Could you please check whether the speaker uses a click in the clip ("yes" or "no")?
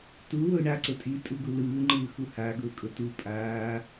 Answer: yes